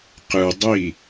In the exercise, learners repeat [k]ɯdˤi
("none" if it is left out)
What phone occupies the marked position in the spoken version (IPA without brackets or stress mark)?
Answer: q